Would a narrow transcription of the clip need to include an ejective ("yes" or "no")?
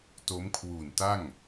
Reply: no